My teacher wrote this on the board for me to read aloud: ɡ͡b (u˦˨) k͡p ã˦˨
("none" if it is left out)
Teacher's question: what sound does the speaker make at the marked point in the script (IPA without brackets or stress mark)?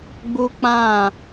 u˦